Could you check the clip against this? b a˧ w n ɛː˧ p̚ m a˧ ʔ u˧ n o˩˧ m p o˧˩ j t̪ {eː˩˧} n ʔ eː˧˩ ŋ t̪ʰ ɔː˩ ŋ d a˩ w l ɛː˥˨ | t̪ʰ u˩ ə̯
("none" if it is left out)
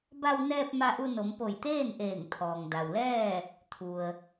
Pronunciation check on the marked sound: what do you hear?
eː˥˨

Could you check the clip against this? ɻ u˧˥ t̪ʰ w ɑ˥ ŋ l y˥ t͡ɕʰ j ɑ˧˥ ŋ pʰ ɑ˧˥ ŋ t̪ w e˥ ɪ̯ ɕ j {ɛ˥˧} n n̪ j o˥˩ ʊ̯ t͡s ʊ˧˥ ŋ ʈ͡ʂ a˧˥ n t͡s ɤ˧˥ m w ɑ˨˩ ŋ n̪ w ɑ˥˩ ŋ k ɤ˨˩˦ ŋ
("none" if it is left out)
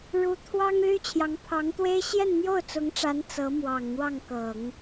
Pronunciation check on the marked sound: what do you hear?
ɛ˥˧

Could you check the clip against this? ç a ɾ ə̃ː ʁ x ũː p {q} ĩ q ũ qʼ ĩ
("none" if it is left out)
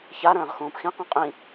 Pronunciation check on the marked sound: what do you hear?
x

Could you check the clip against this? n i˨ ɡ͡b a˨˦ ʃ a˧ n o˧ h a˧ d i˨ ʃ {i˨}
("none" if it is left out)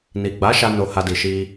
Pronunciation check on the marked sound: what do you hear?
i˧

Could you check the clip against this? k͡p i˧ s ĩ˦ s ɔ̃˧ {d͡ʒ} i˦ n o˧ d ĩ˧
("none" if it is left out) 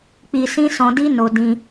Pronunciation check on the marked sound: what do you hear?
d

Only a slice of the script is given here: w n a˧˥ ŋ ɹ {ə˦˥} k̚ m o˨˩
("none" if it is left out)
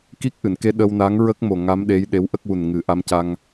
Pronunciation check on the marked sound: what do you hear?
ə˦˥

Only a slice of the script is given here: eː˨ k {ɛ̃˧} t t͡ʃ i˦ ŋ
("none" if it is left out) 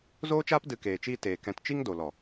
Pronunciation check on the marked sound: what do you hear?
ɛ̃˧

